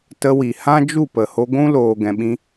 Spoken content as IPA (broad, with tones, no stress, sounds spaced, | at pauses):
t ə˧ w i˨ h ã˦ d͡ʒ u˦˨ p ə˨ h o˧ ɡʷ ũ˦ l oː˨ ɡ ɛ̃˨ ɓ ĩ˧